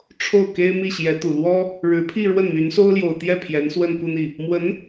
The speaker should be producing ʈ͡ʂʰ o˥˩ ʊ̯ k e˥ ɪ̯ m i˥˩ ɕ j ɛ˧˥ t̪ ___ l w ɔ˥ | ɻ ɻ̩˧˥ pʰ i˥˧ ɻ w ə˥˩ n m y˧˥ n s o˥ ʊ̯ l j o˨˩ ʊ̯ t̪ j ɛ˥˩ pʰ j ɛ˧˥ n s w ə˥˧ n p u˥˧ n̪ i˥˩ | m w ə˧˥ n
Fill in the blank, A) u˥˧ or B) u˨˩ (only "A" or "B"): B